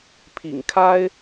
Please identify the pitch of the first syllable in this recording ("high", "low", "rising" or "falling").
low